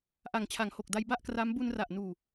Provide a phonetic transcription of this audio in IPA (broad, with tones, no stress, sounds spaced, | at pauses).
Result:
ʔ a˨˩ ŋ t͡ɕʰ a˩˦ ŋ h o˨˩ k̚ d a˧ j b a˥˩ ʔ k r a˦˥ m b u˧ n r a˨˩ ʔ n uː˨˩